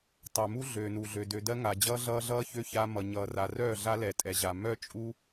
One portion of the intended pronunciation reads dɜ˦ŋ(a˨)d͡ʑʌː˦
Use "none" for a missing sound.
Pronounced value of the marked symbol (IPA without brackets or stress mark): a˨